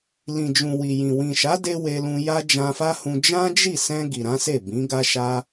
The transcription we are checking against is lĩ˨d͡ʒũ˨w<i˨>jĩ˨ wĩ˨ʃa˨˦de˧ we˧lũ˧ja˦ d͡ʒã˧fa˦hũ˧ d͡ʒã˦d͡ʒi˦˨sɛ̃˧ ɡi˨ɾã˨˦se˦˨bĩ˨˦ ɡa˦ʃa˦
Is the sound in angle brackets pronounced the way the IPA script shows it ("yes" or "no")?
yes